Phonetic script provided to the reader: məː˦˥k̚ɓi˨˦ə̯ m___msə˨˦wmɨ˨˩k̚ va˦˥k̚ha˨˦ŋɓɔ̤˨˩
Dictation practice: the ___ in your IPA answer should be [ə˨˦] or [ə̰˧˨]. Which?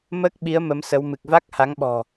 ə˨˦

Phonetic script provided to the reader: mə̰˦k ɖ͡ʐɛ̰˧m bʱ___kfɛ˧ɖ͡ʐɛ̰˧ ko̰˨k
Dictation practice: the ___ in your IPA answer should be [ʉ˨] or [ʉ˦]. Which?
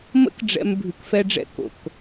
ʉ˨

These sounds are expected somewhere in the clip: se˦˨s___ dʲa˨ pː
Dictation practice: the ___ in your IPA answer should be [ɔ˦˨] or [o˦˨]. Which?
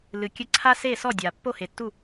ɔ˦˨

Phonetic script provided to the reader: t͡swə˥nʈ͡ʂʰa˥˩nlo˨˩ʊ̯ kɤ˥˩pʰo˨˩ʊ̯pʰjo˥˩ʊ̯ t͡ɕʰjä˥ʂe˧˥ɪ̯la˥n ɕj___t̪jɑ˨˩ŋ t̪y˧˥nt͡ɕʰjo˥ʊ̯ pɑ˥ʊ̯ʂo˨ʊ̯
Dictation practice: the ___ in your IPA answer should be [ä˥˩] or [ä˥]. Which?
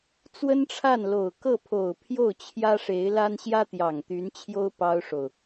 ä˥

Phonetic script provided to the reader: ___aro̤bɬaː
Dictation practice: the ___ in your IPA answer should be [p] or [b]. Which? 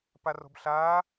p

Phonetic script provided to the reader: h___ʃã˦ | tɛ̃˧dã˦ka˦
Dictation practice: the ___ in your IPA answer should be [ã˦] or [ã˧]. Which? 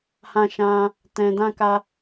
ã˦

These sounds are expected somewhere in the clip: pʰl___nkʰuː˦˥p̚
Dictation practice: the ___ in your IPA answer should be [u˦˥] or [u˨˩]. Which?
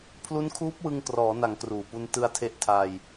u˦˥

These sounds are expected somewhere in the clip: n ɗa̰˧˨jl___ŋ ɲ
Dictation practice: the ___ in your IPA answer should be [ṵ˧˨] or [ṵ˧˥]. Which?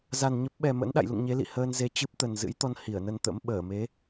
ṵ˧˨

